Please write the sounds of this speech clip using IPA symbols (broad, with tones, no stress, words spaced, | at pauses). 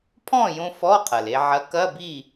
pʰɔ̃˥˨jõ˧ fɔ˧˥˧qʰɐ˩le˧ʕɐ˨˥ kɐ˧˥˧bi˥˨